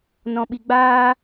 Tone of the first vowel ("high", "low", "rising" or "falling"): high